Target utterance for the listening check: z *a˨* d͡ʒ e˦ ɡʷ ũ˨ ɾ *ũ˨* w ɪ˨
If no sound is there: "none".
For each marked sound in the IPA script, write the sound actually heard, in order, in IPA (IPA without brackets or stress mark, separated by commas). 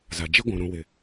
a˨, ũ˨